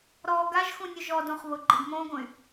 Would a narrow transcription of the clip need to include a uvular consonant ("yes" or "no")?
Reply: yes